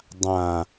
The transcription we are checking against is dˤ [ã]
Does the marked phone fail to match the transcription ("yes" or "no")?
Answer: no